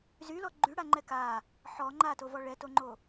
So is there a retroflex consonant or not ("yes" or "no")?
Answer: yes